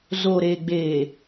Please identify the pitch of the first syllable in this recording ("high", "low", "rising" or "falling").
low